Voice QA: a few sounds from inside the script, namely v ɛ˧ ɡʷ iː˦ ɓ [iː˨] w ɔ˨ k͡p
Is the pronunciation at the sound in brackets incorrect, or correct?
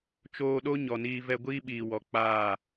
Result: correct